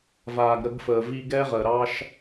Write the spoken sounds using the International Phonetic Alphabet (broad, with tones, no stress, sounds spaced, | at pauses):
v aː˨ ɡ ɾ ə˧ ɡ f əː˨ v i˧ ɡ ɛ˦ ʁ ə˨ ɾ ɑ˧ ʃ